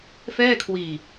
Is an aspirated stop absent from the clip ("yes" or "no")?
no